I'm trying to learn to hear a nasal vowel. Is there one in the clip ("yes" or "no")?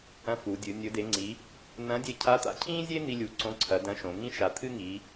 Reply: yes